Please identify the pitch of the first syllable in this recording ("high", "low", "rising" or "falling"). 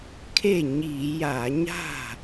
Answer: falling